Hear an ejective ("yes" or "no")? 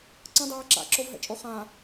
yes